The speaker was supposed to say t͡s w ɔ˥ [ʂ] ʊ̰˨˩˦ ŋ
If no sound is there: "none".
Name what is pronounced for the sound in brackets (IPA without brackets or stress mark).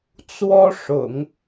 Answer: ʂ